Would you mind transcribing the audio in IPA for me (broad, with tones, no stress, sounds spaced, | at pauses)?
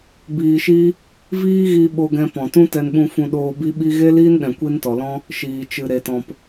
b iː˧ ʃ i˦ | v iː˦ ɣ i˧ ɓ o˧ ɡ ɛ̃˧ p ɔ̃˨ t ũ˦ t ɛ˧ n ɓ ũ˧ f ũ˧ ɗ oː˧ b i˦ ɓ i˦ ɣ e˦ l iː˦ n ɗ ɛ̃˨ kʷ i˧ n t ɔ˨ l ɔ̃˦ | ʃ iː˨ t͡ʃ ɨ˨ ɾ e˨ t ɔ̃˨ p